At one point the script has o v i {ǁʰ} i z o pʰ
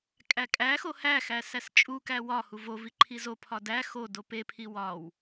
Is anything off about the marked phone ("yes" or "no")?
yes